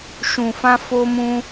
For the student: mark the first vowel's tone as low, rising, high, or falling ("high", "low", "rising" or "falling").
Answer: low